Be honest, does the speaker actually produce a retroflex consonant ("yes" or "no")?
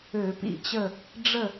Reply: yes